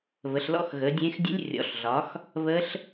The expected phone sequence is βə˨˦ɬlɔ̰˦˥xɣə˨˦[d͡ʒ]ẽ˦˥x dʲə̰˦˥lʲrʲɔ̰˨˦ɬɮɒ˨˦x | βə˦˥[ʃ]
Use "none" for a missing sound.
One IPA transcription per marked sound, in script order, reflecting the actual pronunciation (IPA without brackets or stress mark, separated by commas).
dʲ, ɬ